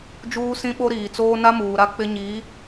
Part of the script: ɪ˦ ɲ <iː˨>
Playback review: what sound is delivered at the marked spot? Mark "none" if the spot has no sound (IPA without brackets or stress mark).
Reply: iː˨˦